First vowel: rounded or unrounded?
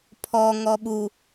rounded